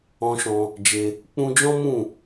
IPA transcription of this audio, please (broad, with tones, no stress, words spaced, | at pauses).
ɔ̃˧ʃɔ̃˧ | d͡ʒe˧ | k͡pũ˧d͡ʒɔ̃˦mũ˦˨